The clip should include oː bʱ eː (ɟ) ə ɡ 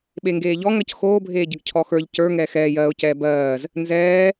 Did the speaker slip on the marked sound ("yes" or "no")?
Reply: no